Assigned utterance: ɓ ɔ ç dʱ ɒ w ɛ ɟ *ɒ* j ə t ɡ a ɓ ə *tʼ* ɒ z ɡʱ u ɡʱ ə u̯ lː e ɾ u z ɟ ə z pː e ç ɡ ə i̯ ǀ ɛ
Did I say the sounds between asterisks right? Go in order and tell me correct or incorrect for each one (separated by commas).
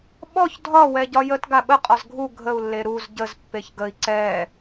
correct, incorrect